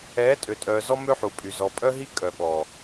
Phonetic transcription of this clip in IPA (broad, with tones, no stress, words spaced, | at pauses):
ɛː˨˦tʼø˨tʼœː˨zɔ˦ mø˦ħu˨pʼy˨ zɔ˨pʼœ˦ɦi˦ kʼœ˨ɓɔ˨